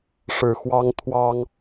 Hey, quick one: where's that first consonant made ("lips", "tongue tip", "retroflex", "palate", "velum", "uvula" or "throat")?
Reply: retroflex